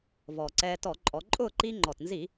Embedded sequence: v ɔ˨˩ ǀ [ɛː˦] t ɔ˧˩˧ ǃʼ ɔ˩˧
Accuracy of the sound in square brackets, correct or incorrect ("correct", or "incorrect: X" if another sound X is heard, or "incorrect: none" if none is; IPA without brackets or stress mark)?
correct